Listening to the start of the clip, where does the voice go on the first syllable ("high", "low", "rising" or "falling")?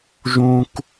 high